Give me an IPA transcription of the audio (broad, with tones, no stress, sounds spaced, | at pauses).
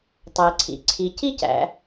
tˤ æ˩ ǀʰ ḭ˩ ǀʰ i˩ c i˥ c æ̰˩